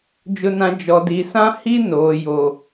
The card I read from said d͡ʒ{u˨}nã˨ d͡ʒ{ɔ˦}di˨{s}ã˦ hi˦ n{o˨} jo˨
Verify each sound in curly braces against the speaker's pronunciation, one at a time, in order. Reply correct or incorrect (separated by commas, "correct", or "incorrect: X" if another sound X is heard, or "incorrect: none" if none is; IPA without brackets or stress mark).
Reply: incorrect: ʊ˨, incorrect: ɔ˨, correct, incorrect: oː˨